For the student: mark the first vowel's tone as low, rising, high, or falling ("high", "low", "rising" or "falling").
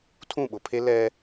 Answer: falling